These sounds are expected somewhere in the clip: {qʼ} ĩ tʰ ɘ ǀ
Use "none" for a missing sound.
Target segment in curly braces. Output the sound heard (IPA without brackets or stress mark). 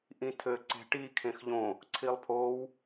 ʔ